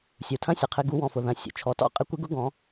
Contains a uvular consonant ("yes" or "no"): yes